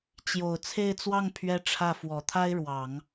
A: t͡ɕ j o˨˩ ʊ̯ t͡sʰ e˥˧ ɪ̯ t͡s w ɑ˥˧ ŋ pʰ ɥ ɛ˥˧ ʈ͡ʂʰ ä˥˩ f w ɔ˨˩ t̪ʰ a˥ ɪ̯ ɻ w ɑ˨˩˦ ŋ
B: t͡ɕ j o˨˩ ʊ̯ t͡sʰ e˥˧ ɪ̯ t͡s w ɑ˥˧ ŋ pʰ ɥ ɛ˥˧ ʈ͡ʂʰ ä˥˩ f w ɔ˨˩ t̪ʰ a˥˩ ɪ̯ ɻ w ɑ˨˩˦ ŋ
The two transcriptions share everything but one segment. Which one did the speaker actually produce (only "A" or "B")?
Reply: A